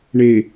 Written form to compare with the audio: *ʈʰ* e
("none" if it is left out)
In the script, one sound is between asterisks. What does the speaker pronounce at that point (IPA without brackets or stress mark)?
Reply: ɳ